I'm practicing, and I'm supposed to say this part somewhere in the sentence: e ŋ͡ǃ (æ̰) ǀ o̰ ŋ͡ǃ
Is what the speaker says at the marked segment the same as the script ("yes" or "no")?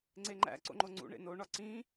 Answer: yes